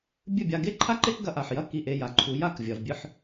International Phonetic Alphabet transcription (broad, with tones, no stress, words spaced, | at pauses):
bʲɨ˥˩bʲa˧ ɡe˥ǃʰa˥ǃe˥kɡɐ˧ ʔa˩ħjɐ˥˩ ki˥˩ʔe˧ja˩ǃʰu˩˥ ja˥˩k vʲɐ˩v bʲɨ˧ħ